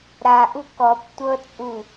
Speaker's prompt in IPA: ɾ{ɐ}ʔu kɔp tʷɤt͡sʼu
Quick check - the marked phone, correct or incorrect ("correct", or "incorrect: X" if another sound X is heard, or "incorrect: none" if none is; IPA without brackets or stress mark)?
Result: incorrect: a